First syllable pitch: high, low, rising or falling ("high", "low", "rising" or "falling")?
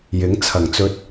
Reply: rising